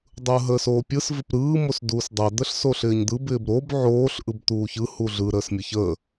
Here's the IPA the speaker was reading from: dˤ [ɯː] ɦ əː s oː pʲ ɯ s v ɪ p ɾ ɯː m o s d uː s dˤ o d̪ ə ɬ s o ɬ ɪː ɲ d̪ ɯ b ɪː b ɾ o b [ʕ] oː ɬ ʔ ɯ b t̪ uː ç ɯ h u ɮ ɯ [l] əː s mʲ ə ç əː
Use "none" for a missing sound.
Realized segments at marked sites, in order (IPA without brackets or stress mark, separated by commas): ɯː, ʕ, ɾ